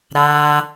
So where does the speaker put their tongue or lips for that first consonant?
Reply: tongue tip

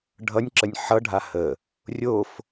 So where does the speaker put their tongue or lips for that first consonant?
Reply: retroflex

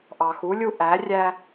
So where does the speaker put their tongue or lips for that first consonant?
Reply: throat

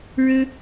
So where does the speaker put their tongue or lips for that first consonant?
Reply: retroflex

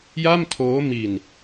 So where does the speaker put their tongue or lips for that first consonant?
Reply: palate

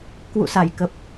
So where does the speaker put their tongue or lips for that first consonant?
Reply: velum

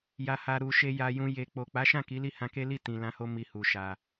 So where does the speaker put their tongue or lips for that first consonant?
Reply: palate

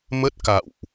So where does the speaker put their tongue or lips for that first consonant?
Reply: lips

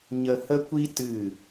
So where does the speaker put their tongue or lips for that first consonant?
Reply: palate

